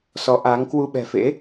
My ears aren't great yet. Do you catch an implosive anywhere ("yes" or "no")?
yes